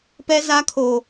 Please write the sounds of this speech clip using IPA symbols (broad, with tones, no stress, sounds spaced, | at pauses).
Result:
p ɛ˦ z a˦ kʰ o˨